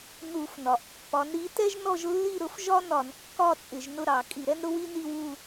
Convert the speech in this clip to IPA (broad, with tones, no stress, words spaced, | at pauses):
nu˧˩˧fnɒ˩ʔpːɒ˨˥n ɾi˨˥tɛ˥ʒ nɔ˥˧ʒlːi˥˧ɾʊ˨˥fʒɒ˥ nɒ˧˩˧nkːɒ˥˧ t͡sʼɪ˧˩˧ʒnʊ˥˧ɾɑ˧˩˧ kʼi˧˩˧ɾɛ˥nɾʊ˥ wi˥ni˥˧wu˥˧